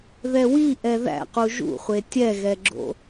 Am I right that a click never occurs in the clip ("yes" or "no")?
no